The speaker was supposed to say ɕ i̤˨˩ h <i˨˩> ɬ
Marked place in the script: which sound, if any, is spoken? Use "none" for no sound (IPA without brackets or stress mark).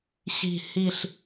i˨˩